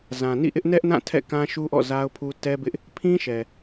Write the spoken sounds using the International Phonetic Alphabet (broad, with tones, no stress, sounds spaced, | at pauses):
z ã˨ n ḭ˦˨ ʔ ɪ˦ ʔ n ɛ˦ ʔ n ã˦˨ tʰ ɛ̰˦˨ k ã˦ ʃ u˦ ʔ ɔ̰˦˨ z a˦ ʊ̯ pʰ u˦ t ɛ˦ b ɪ˦ ʔ | pʰ ĩ˦ ʃ ɛ˨